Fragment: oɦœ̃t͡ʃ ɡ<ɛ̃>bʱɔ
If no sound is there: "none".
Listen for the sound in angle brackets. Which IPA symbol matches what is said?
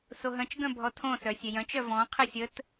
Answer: œ̃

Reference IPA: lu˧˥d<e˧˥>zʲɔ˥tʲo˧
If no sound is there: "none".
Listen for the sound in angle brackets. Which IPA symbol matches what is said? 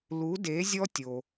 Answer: e˧˥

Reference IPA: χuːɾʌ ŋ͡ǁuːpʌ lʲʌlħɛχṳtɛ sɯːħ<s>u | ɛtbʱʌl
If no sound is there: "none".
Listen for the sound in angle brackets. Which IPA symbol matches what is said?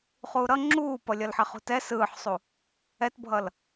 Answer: sˤ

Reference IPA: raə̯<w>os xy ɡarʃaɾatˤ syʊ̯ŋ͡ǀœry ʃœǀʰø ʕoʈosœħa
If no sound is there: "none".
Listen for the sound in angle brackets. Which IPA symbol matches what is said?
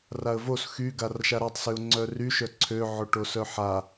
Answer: v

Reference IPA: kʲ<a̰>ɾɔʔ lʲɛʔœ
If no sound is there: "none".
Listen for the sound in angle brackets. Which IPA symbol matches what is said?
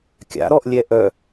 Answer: a̰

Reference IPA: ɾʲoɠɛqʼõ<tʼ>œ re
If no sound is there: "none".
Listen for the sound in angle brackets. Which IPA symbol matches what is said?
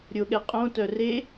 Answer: t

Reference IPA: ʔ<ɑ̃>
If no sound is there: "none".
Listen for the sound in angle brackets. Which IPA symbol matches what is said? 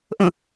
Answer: ə̃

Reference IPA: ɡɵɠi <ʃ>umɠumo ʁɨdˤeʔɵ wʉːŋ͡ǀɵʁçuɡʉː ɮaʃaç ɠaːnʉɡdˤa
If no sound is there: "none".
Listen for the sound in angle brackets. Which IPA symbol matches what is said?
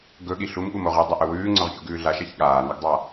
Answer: ɬ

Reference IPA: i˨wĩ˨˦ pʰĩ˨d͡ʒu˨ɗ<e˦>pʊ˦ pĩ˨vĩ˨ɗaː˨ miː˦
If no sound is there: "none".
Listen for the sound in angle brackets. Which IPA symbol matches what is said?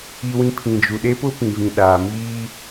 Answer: e˦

